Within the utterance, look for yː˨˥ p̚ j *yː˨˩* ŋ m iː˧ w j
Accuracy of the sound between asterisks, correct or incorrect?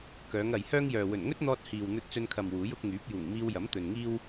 incorrect